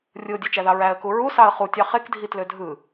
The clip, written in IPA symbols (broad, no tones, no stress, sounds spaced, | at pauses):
rʲ ɯ ʊ̯ dʲ e t͡ʃ æ ð ɑ ɹ æ ə̯ k u ɹ u s ɑ ə̯ χ u tʲ ɑ χ e k dʱ i t l ø dʱ ɯ